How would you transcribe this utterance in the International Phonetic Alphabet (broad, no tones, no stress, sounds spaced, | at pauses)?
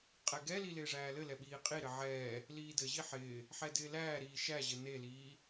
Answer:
qʼ ɛ ɡ ɛ l i l ɪː ʐ æː l ɘ l ɛ ɓ iː qʼ i ɾ ɘ ʕ ɛː | l iː d ɘ ʑ i ħ ɪː | ħ ɛ d ɪː l æː ɾ iː ʃ æ ʑ ɘ n e l iː